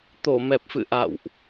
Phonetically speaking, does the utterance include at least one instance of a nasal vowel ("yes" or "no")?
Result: no